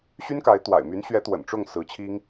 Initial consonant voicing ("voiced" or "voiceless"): voiceless